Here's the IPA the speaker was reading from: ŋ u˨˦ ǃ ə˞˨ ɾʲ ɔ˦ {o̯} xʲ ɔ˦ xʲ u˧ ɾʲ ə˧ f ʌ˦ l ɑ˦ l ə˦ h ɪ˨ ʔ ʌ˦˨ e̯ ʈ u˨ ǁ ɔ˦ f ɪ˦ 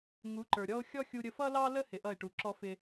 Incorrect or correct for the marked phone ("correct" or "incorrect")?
correct